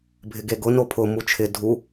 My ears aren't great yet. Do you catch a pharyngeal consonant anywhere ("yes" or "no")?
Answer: no